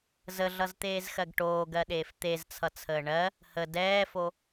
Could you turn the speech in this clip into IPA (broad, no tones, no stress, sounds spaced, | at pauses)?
z ə ɮ ʌ z t̪ eː z x ɜ ɡ ʈ oː ɡ ɜ ɗ eː f t̪ e z t͡sʰ ʌ t͡sʰ əː ɳ ɜ | h ə d ɛː f o